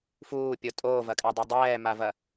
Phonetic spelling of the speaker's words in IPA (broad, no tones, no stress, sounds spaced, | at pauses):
f uː pʲ o tʼ oː v ɐ kʼ a dˤ ɛ dˤ ɛː m a v ɐ